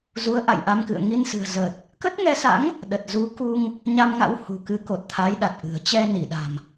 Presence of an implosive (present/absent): present